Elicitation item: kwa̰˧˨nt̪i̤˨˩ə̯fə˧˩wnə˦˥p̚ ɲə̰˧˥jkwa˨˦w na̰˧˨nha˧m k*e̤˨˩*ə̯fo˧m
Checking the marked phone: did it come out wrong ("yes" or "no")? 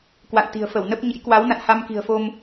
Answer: yes